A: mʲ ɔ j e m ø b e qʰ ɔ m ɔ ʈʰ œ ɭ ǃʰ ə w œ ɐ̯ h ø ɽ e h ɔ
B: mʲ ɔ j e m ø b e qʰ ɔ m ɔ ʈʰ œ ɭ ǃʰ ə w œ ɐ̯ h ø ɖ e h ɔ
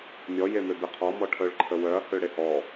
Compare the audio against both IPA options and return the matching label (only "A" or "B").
A